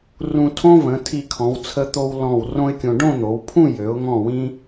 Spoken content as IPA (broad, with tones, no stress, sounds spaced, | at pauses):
r ũ˧ tʰ õ˥ v ə̃˩˧ tʰ i˧˩ kʰ ɔ̃˩˧ w t͡sʰ ə˧ t̪ o˧ w l ɔ̃˧˩ w r õ˥ ɪ̯ kʲ õ˧ ɖ õ˥˧ n̪ o˩˧ w pʰ ũ˥˧ j ø˩˧ ʊ̯ ŋ ɔ̃˧˩ w ĩ˧